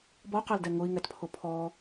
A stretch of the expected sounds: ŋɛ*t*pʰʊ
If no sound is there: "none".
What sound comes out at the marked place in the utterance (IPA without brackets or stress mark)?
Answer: t